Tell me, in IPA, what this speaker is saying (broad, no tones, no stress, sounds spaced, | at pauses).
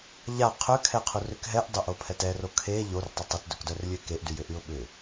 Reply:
ʎ a qʰ ø kʰ ɛ qʰ u r ʏ k ɦ ɛ ʔ dˤ ʏ ʔ o pʰ ɛ t ɛ r o kʰ e ʎ o r tˤ ʏ tˤ ʏ t d ʏ k d œ r lʲ ø k e ʔ d y j ʏ ʔ y ʊ̯ ɓ ʏ